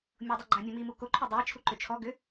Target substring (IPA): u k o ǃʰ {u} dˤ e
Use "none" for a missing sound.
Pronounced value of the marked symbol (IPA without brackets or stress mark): ʏ